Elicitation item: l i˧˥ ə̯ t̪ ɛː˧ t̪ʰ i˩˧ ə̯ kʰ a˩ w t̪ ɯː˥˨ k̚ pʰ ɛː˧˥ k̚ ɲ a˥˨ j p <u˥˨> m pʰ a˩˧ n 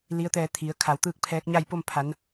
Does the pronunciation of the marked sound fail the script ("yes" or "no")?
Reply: yes